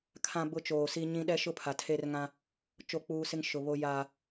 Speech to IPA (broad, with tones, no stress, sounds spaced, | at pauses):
kʰ ã˦ b ʊ˦ t͡ʃ oː˨ s i˦ ɲ ĩ˦ ɗ ɛ˦ ʃ ʊ˦ pʰ a˨ tʰ e˦ r ŋ ã˦ | t͡ʃ o˦˨ k͡p uː˦ s ɪ˦ ŋ ʃ ʊ˨ β o˦ j a˦